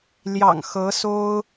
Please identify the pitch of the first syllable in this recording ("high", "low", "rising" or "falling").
low